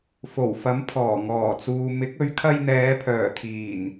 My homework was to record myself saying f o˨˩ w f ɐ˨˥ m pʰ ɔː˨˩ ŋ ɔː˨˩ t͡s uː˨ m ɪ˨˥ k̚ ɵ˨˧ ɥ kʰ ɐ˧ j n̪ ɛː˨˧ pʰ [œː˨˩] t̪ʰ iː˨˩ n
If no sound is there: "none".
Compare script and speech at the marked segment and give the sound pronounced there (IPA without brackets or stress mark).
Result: œː˨˩